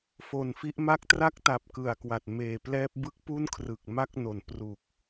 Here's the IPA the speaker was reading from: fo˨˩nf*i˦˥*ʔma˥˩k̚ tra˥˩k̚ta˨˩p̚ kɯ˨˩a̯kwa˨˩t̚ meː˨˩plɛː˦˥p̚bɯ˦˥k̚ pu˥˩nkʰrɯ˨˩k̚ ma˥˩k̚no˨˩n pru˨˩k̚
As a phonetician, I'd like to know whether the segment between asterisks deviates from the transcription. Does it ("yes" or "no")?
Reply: no